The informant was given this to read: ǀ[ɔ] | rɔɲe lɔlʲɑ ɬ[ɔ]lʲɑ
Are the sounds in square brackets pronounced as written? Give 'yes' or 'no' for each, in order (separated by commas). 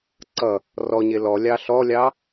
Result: no, yes